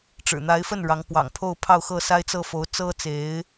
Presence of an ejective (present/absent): absent